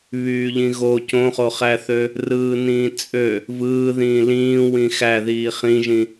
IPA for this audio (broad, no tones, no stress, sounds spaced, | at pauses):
β yː ʎ ĩ ɣ o c õ χ o χ æ θ ø | r ɯː n ĩː t͡sʼ ø | v ɯː ð ĩː l ĩː w ĩ x æ ð iː χ ĩ ʒ ĩ